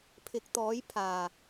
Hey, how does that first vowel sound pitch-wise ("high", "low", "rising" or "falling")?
rising